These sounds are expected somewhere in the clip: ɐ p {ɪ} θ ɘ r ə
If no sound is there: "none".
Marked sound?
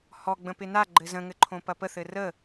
ə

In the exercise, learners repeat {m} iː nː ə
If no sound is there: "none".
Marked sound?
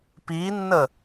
p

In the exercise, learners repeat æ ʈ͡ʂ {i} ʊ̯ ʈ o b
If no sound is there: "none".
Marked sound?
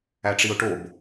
i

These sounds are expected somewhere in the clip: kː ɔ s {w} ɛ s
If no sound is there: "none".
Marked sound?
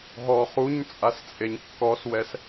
w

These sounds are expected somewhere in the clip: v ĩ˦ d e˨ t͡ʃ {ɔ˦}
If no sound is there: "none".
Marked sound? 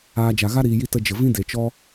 ɔ˦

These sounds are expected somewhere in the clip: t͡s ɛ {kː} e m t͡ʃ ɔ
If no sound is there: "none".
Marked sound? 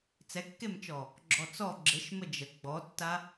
kː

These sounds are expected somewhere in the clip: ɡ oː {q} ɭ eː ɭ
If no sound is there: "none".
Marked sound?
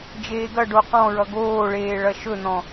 none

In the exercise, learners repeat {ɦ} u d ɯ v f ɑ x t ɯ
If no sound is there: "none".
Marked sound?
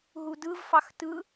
ɦ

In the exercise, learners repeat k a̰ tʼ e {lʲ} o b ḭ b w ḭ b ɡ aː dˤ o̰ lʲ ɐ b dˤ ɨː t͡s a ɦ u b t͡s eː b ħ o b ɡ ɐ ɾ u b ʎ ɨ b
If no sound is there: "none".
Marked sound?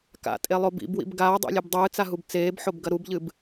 lˠ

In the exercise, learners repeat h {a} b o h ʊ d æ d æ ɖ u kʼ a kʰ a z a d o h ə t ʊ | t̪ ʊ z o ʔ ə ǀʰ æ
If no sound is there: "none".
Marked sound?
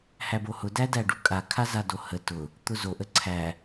æ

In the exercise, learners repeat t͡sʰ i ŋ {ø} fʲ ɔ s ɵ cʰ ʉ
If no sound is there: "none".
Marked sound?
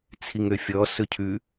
ø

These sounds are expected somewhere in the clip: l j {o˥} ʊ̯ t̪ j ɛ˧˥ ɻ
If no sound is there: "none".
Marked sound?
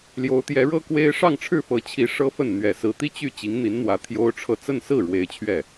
o˧˥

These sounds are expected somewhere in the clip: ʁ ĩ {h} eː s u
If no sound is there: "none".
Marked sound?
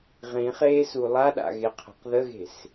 χ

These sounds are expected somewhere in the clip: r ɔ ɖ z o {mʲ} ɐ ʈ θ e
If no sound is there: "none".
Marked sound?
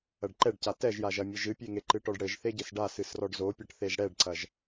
pʲ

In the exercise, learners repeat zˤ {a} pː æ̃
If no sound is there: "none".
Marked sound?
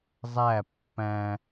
æ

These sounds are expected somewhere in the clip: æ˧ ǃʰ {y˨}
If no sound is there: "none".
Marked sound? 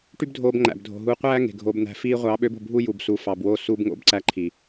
i˨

